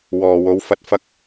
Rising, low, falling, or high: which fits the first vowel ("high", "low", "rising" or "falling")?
low